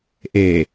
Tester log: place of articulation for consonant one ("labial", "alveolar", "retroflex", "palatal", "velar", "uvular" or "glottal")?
glottal